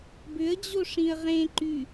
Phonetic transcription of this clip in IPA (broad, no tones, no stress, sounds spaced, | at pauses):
b ʏ ə̯ d͡ʑ o ʂ ĩ ə̯ ʁ ẽ ǃ y